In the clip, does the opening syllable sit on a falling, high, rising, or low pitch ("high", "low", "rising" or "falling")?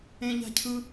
high